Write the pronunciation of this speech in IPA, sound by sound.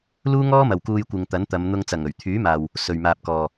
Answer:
l uː˥ ŋ ɔː˥ m ɐ˨ w k uː˧ j kʷ ɪ˨ ŋ t̪ ɐ˨˥ n t̪ ɐ˨˧ m n̪ ʊ˧ ŋ t͡s ɐ˨˩ ŋ ɵ˨˩ ɥ t̪ʰ yː˨˥ m aː˨ w | s ɵ˨ ɥ m aː˨ p̚ k ɔː˨

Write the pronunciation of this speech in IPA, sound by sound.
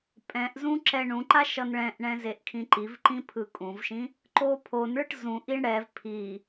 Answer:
pʼ ɛ̃ ʔ z ũ ǁ ɛ ɳ ũ ǃ a ʃ ʌ n ɭ ɛ̃ ʔ ɳ ɛ̃ z e ʔ kʰ ĩ ǃ i v ǃ ĩ pʰ ɯ kʼ ũ v ʃ ĩ | ǃ o pʰ o n ɭ ɯ ʈ z ũ ʔ i ɳ ɽ ɛ v pʰ i

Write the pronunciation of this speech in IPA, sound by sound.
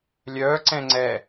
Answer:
lʲ œː ǀ ɛ̃ ŋ͡ǀ ɛ

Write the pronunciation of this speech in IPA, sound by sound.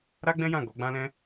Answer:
ɾ a˦ ɡ͡b ɛ̃˦ j ã˦˨ ɡ ɔ˨˦ ɡ͡b ã˦ l ɛ̃˦

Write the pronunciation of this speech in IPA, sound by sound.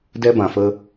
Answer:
d ɛ˧ b ã˨ f ə˧

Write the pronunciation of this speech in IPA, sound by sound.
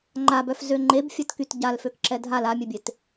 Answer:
ŋ͡ǃ a b œ f z ø ŋ͡ǃ e b fʲ ɛ t k y t ɟ a l f ø k ǁ ɛ dʱ a l a mʲ e bʲ e t

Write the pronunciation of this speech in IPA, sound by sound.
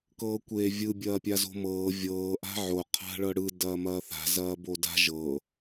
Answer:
k ɤː kʷ eː vʲ ɯ bʲ ɐː pʲ a z o̤ m ɤː vʲ ɤː ʔ a̤ ʕ o qʰ a̤ ɭ ɤ ɽ ɯ d ɐː m ɐː θ a̤ z ɐː b o d a̤ ʒ ɤ

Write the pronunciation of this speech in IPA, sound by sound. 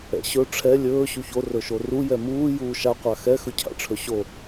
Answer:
ɛ̰ ɕ ɵ ʈ͡ʂʰ ɛ lʲ ɵː ɕ u ç o r ɵ ʃ o r u j ɛ m uː j uː ʃ a qʷ a x ɛ x ɵ cʰ a̰ ʈ͡ʂʰ ɵ ɕ o

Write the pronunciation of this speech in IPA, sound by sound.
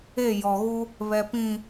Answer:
e˦˨ j ɔ˨ ɣ u˦ | β ɛ˨ p ĩ˨

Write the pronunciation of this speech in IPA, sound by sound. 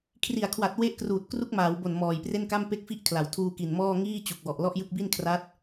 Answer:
kʰ r i˨˩ a̯ kʰ w a˨˩ t̚ w e˦˥ ʔ k r uː˨˩ t̚ k r u˦˥ k̚ m aː˩˦ w b o˨˩ n m ɔː˨˩ j p r e˥˩ n k a˥˩ m p e˥˩ k̚ f i˥˩ ʔ kʰ l a˩˦ w tʰ uː˧ k i˨˩ n m ɔː˥˩ ŋ iː˥˩ t͡ɕ u˨˩ k̚ w ɔ˨˩ ʔ l ɔ˥˩ ʔ j ɯ˥˩ k̚ b i˥˩ n kʰ r a˦˥ t̚

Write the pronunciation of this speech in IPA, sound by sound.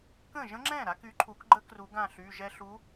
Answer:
k ə̃˥˩ ʒ ə̃˦˥ ŋ͡ǁ ɛ̃˥˩ ɾ a˨˥ k y˨˥ ǃʰ u˨˩˦ k ɡ͡ǃ ə˦˥ k r u˨˩˦ ɡ ã˥˩ ɬ y˩˧˩ ʒ ɛ˧ ɬ u˨˥

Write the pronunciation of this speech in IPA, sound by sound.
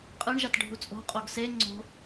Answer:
qʼ ɯ ɳ ʒ a t ɖʱ u t͡sʼ o̤ qʼ o ɡ s e ŋ͡ǀ o̤

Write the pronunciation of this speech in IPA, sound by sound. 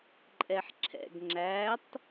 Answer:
ǃʼ ɛ ħ ǁʰ ɛ̰ ɡ ŋ͡ǁ æ tˤ

